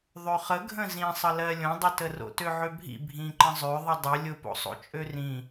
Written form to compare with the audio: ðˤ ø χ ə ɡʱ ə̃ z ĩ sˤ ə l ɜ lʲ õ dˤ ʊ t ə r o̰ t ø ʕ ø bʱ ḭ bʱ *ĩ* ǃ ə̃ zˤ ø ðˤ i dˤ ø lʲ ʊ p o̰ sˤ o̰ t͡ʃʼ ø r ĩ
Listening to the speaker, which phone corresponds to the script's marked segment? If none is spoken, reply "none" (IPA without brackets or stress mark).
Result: ĩ